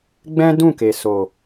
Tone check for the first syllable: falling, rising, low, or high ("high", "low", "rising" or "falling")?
high